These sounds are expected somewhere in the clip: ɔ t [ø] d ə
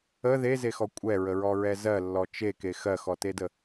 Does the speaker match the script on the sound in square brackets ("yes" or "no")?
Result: no